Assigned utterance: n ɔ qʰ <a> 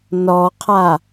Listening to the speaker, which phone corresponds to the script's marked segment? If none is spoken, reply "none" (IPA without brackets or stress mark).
a